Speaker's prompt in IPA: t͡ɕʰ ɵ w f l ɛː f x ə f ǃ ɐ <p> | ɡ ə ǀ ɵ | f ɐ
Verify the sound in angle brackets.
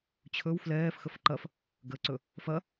incorrect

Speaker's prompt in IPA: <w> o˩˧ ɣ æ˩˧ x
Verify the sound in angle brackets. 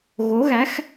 incorrect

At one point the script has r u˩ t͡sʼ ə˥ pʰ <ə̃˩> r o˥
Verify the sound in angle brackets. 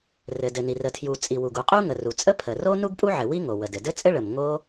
incorrect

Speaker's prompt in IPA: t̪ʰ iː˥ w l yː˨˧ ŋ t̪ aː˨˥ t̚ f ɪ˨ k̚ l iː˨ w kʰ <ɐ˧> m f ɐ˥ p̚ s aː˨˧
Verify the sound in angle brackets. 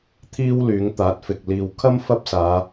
incorrect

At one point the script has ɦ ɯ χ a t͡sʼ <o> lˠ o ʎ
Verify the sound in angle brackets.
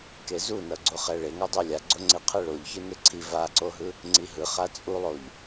incorrect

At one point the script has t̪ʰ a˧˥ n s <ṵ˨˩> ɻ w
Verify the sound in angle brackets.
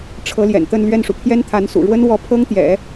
correct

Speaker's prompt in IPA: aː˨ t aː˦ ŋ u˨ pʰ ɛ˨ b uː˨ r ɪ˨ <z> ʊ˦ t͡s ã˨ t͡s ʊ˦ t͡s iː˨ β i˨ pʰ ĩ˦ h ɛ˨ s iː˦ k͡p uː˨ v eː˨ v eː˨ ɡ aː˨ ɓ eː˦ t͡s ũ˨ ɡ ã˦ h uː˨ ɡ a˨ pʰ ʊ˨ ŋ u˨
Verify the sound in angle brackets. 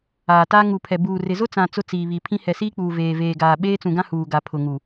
correct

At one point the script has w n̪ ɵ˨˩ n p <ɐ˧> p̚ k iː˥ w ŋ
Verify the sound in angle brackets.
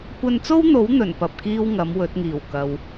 incorrect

